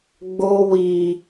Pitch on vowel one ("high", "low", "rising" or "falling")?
high